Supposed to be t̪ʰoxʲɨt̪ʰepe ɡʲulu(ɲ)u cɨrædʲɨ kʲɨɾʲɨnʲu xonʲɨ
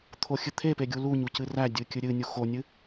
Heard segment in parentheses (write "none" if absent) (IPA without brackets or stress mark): ɲ